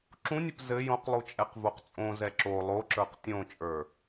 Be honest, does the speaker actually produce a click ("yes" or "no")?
yes